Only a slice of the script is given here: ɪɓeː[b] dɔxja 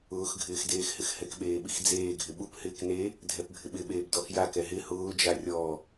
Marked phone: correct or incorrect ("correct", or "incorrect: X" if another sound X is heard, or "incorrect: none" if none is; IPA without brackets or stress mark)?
correct